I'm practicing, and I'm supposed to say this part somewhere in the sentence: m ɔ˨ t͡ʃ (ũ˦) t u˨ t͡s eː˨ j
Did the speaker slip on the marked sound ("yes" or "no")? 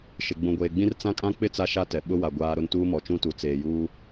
no